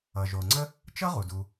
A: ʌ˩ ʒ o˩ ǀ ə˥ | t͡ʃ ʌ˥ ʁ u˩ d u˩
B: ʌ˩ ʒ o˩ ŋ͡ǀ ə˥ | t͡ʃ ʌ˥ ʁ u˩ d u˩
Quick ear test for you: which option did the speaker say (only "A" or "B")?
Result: B